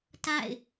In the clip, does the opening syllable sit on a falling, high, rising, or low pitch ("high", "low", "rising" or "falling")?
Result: falling